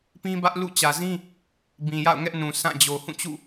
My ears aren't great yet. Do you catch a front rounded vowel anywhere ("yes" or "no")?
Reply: no